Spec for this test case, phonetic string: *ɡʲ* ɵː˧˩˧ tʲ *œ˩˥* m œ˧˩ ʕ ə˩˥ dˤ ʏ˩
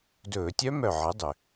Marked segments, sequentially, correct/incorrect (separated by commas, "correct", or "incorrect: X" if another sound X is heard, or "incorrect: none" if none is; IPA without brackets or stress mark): incorrect: d, incorrect: œ˦˥